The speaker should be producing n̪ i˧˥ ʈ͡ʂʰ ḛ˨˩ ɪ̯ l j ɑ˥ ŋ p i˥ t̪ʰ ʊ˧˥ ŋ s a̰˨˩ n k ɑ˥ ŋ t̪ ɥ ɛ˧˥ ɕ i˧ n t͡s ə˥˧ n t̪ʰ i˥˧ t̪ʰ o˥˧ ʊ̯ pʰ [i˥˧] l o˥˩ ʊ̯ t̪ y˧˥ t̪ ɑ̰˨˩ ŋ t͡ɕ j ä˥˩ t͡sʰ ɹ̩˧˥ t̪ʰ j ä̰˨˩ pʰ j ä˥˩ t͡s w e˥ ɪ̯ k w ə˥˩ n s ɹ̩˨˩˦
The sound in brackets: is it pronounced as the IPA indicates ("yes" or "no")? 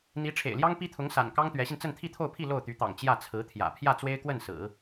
yes